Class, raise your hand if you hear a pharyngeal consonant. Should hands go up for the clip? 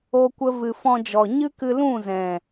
no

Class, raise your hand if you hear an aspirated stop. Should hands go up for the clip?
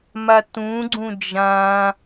no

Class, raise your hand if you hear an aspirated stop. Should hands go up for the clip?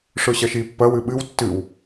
no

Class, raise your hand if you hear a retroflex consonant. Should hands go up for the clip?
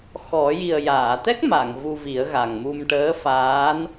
yes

